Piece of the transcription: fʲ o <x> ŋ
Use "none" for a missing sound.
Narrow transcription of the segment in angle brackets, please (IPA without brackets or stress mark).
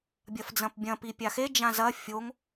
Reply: none